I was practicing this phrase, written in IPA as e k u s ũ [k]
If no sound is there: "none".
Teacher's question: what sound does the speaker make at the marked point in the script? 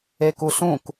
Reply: k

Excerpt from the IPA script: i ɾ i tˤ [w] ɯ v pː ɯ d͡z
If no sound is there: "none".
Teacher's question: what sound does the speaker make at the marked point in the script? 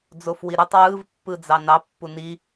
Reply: w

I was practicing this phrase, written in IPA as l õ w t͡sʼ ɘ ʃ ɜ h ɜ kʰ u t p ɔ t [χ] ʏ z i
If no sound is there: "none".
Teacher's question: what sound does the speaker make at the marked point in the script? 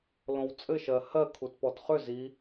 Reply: χ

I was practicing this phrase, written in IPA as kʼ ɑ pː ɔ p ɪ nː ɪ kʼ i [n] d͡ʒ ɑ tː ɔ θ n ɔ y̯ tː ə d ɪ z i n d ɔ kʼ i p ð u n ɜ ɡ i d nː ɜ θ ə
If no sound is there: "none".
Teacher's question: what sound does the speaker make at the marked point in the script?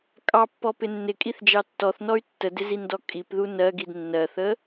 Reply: θ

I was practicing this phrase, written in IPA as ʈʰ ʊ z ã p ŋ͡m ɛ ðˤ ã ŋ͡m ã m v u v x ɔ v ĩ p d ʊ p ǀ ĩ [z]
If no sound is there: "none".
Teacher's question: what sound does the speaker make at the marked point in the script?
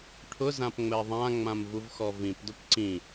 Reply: none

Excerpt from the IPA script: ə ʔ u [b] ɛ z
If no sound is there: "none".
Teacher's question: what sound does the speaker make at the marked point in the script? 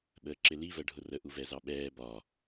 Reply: v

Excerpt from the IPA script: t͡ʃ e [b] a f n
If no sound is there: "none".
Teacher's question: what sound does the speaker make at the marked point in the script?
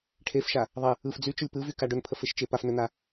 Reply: p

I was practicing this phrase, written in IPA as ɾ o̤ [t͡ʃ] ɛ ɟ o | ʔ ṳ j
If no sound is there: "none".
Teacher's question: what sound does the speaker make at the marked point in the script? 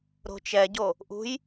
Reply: t͡ʃ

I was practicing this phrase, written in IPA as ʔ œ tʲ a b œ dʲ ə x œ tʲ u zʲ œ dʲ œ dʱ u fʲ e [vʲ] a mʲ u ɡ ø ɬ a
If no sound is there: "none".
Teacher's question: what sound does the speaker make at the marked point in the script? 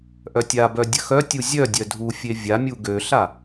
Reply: vʲ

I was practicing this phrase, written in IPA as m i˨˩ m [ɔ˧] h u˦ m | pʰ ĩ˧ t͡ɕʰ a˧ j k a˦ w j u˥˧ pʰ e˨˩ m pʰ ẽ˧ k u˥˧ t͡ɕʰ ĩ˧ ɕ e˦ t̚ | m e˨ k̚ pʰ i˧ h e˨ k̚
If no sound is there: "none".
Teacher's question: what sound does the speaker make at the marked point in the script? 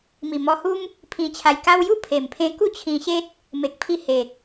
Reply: ɔ˧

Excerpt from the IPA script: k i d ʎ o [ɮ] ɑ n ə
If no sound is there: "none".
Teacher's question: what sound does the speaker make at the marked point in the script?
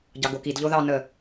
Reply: ð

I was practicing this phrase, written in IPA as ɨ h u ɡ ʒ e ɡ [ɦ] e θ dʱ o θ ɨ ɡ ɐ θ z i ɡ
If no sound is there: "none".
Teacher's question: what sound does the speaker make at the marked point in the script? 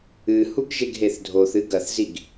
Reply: ɦ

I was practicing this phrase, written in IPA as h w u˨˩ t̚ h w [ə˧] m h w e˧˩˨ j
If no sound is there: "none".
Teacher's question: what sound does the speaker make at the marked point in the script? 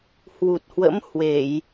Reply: ə̰˧˥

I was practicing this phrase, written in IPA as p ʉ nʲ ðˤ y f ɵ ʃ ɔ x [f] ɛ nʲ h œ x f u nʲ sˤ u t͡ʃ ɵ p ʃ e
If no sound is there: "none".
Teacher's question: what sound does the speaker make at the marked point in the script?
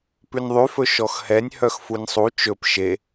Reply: h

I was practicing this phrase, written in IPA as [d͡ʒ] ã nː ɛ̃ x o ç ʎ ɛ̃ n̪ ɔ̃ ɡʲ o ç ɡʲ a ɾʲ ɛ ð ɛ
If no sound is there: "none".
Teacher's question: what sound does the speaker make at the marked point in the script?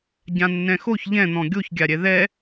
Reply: ɟ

